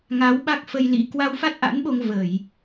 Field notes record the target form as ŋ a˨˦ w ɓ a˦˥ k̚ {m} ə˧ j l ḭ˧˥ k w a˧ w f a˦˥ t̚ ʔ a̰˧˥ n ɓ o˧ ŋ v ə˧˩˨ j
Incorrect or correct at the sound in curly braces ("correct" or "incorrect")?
incorrect